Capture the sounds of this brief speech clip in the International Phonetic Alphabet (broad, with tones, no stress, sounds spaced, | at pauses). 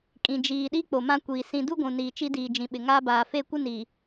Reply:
kʼ ĩ˨ d͡ʒ iː˨ ɗ i˦ k͡p o˨ m ã˦ kʷ iː˨ s ĩ˨ d u˦ ɡʷ ũ˨ n iː˨ t͡ʃ i˦ d iː˨ d͡ʒ ĩ˨ ɓ ɪ˨ ŋ aː˦ b aː˨ f e˦˨ kʷ ɪ˦ n iː˨